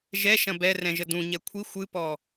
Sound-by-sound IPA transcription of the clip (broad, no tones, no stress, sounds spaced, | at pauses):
ʒ ɛ ʃ ɐ̃ b ɛ r ɛ̃ ʒ ə d ũ ɲ ɛ kʷʰ i xʷ ɨ p ɔ